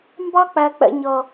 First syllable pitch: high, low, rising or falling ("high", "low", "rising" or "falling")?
high